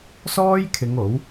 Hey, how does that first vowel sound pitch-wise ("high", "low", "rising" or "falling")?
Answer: high